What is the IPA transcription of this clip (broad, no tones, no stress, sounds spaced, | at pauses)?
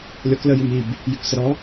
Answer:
lʲ ɔ k l ə j ʉ m i b | j ʉ k s ə ɾ ɔ